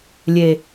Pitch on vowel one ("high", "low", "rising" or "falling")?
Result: low